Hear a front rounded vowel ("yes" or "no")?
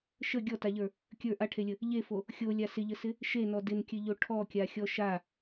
no